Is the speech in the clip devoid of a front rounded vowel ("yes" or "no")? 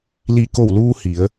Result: yes